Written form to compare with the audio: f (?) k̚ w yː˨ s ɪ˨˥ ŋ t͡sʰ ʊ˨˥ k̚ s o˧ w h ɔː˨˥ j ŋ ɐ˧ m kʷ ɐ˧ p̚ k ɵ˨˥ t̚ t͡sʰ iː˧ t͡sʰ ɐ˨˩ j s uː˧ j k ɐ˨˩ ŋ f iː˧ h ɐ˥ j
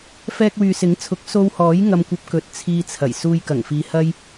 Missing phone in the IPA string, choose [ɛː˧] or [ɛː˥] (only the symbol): ɛː˧